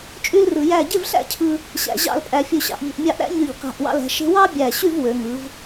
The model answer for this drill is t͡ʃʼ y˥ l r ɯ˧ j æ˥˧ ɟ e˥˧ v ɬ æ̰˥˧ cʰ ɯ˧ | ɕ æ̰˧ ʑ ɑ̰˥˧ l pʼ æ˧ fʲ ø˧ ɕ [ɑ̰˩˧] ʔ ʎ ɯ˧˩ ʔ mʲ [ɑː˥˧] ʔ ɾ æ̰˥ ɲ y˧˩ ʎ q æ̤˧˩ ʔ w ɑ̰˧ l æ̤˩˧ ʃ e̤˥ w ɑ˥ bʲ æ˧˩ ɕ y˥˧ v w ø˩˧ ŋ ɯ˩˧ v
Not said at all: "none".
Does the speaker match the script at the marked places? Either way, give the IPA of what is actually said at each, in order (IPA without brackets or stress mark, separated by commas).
ɑ̰˩˧, ɑ˥˧